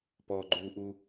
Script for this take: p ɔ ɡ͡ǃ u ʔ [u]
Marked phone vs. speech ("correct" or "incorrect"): correct